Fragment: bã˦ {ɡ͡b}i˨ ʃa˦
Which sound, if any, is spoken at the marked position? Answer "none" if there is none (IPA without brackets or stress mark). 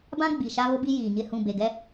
ɡ͡b